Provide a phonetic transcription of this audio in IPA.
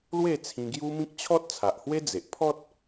l w e˥˧ t͡sʰ ĩ˧ ɡ j u˦ m ĩ˦ k̚ t͡ɕʰ ɔ˦ t̚ t͡sʰ a˨ ʔ h w e˦ d͡z e˨ ʔ pʰ ɔ˦ t̚

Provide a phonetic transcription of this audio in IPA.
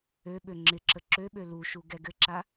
ø ɓ ø ŋ͡ǁ ɪ ǁ ə ǁ ø ɓ ø l u ʃ u ɡ ɛ ɡ ɘ ǁ a

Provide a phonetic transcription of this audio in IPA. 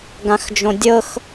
ɡ ã x d͡ʒ õ dʲ ɤ x

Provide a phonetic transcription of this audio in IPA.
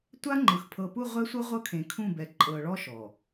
tʷ a˦ ŋ͡ǃ ɯ˨ x pʰ ɤ˨ p u˦˨ ʁʷ ɛ˦ sʷ ɤ˦ ʁʷ ɤ˦ kʰ ẽ˨ kʰ ũ˦˨ b ɛ˨ ǃʼ ɤ˨ ɭ ɔ˦ ʃ ɔ˨

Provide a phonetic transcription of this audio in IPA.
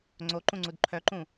ŋ͡ǀ o ǃ ũ ŋ͡ǀ u d ǃʰ œ ǃ ũ

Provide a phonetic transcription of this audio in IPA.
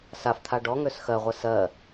s a f t̪ʰ a ɖ ɔ ŋ ø s x ɜ ʁʷ ɛ s ɜ

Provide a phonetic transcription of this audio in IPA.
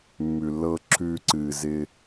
mː ʉ˨ lː ɤː˧ ǁʰ ʉː˧ ǀ ɨː˨ z ɪ˧

